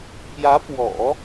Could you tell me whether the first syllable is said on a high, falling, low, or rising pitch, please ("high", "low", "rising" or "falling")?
rising